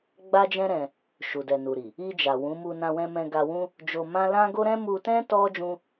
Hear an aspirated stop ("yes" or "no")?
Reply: no